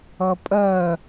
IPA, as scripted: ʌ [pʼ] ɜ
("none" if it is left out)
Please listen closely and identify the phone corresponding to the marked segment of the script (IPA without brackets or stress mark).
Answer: pʼ